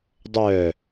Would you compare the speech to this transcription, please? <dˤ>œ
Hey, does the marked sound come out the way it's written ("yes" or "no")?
yes